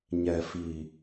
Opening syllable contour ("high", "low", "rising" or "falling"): low